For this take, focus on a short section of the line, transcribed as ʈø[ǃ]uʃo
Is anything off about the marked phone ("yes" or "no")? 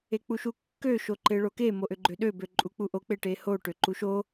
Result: no